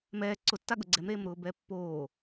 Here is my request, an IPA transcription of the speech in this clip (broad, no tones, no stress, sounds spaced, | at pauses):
m ɛː ǀ ʊ tː a ɠ ʊ ɡ͡ǀ ɛ m ɾ eː m ɾ ʊː b ɛː pː oː